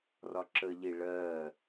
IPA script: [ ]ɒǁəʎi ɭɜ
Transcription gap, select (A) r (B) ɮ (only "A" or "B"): A